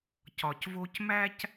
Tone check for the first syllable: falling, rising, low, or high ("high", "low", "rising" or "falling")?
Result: low